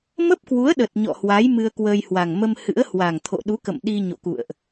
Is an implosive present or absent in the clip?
present